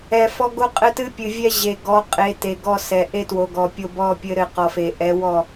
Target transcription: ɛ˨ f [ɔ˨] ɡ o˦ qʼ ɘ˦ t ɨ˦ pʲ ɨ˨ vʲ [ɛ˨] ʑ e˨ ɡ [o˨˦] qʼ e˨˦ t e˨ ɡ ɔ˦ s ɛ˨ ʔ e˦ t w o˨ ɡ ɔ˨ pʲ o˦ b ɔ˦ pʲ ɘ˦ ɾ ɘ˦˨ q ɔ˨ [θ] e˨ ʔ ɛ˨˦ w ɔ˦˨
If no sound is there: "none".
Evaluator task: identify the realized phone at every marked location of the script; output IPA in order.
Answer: ɔ˦, ɛ˦, ɔ˨˦, f

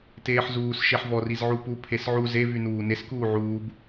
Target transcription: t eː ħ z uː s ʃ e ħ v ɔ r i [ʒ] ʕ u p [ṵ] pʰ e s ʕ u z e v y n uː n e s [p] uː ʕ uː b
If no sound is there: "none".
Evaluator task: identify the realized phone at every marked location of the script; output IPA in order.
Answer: z, u, k

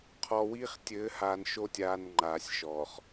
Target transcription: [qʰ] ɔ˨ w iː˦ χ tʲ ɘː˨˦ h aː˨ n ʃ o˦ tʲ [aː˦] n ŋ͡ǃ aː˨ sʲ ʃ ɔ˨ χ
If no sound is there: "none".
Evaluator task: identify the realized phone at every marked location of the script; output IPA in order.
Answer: qʰ, aː˨

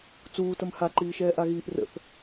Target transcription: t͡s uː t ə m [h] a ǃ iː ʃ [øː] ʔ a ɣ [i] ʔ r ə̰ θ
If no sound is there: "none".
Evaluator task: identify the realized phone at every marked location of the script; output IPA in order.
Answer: h, ɛː, iː

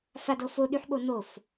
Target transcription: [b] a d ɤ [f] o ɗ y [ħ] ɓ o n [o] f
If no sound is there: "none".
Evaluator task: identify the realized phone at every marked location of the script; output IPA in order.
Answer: f, f, ħ, o

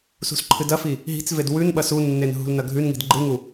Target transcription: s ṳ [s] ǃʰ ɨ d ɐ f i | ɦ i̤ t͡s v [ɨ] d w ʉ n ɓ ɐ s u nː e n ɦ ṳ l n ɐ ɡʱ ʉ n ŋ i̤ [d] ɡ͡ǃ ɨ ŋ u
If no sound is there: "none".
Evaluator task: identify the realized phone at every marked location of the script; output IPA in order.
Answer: s, e, d

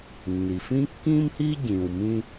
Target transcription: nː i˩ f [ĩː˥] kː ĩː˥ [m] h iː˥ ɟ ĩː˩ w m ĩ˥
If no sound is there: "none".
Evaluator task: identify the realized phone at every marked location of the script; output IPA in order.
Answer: ĩ˥, m

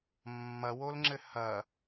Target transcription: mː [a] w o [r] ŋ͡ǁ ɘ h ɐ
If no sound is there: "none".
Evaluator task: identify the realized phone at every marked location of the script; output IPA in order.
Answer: ɐ, l

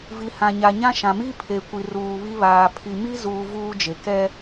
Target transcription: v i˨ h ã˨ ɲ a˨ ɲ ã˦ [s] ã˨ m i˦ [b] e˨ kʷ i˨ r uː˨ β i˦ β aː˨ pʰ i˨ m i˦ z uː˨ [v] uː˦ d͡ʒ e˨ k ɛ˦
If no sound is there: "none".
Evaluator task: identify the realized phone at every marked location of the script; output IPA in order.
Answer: ʃ, pʰ, v

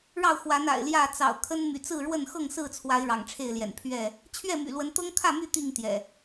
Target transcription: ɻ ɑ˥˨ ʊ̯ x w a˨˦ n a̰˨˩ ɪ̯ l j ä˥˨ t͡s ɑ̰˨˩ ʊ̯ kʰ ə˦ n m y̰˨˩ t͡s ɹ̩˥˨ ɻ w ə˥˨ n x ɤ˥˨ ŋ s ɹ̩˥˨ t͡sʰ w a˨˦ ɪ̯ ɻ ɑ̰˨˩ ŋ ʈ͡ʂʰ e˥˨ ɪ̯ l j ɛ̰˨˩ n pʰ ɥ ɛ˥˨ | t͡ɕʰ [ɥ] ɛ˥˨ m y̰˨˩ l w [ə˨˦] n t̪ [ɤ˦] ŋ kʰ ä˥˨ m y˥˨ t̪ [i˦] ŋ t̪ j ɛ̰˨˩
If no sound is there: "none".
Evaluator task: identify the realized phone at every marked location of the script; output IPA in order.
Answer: ɥ, ə˨˦, ɤ˦, i˥˨

